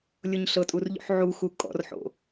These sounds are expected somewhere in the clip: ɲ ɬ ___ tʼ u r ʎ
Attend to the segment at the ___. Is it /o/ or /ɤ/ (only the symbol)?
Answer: ɤ